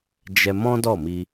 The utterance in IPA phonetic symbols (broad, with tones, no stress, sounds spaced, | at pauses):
d͡ʒ ɛ˧ m ɔ̃˦ d ɔ˦˨ m i˧